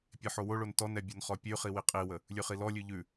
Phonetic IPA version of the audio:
pʲ e ħ o w o ɭ o n t ɔ n ɛ bʲ o n χ ɔ pʲ ʉ χ i w i qʼ i w ə | lʲ ʉ χ i l ɔ lʲ ʉ ʎ ʉ

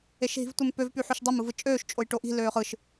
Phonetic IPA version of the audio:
e ʃ ɦ i̤ v tʷ e m p ø v p y ħ y ʃ dˤ o m ɯ v ɯ t͡ʃʼ øː ʃ t͡ʃʼ o j ʈ o ʔ i̤ l øː χ ɯ ʃ

